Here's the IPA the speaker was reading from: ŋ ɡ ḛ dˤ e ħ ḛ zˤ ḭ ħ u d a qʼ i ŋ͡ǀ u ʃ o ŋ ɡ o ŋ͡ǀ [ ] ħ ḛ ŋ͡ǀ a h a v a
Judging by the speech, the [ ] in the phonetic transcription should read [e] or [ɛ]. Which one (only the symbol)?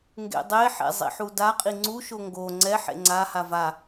ɛ